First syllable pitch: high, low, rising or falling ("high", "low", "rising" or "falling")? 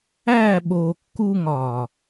falling